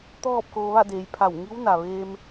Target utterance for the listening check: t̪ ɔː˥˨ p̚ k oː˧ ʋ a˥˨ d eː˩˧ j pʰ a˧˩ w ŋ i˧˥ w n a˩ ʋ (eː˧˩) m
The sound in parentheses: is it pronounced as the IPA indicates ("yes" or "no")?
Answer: no